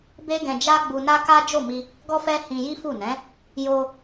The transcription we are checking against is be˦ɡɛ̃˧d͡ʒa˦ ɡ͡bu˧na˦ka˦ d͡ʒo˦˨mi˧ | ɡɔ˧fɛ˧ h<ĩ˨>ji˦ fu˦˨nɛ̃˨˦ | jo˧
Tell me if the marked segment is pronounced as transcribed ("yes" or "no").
no